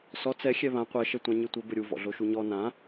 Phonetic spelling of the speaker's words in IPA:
sɔ t͡sɛ xʲɛβã qʷɐ ʃɛtʷãɲɨtʷɘ bɘɾʲu vɔ̰ɮoʃuɲɔ nã

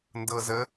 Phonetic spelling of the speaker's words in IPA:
ndɤ˧zə˧˥

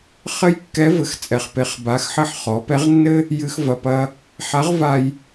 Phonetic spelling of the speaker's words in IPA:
χɘ˥jkːɛ˧˥ vɘ˩˧xt͡sʼɛ˩˧χpe˩˧χ ba˩˧xħɘ˧ħ χɔ˩˧pɛ˧˥ʁnːɘ˥ | jɨ˧xvɐ˩˧˩pɐ˧ | ħa˧˥ʁva˧j

